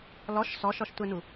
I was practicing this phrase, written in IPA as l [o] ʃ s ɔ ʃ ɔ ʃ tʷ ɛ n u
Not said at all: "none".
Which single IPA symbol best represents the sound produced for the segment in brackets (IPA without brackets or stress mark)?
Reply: ɔ